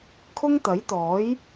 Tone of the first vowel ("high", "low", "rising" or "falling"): high